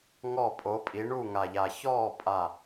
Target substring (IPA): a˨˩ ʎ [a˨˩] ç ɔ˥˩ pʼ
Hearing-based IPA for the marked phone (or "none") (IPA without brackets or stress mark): a˨˩